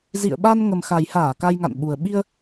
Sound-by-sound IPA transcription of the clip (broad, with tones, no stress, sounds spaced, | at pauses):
z ḭ˧˨ ə̯ ɓ a˧ n ŋ ə˨˩ m x a˨˩ j h aː˧˩ k a˧ j ŋ a̰˧˨ n ɓ u˨˩ ə̯ ɓ i˧ ə̯